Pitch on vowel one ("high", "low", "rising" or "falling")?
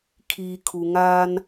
low